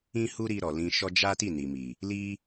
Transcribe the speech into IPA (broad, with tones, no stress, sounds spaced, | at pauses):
ĩ˦ h u˦ ɾ i˧ ɾ ɔ˨ l ĩ˧ ʃ ɔ˦ d͡ʒ a˦ t i˦˨ n i˨ m i˨ | l i˦